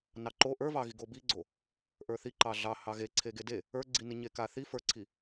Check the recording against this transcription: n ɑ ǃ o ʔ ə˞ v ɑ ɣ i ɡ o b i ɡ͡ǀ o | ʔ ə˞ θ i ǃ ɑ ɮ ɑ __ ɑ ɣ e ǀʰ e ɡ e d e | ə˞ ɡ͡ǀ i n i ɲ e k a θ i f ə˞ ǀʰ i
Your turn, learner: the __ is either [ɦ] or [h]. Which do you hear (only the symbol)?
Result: h